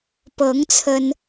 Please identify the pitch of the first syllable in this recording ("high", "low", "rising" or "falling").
rising